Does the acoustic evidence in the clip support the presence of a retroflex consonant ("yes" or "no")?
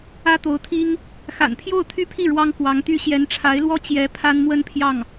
yes